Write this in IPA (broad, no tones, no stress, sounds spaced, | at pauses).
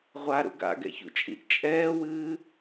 ʁʷ a ɾ ṵ ɡ a̰ ɡ ɛ̰ ç ṵ t͡ʃʼ ḭ ʔ t͡ʃʼ ɛː w ɨː